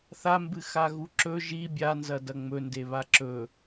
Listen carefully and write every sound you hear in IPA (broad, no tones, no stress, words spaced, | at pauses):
θambɨ xaɣuǁɵ ʒi bʲanzɐ dɐŋ͡mɵnde βaǁɵ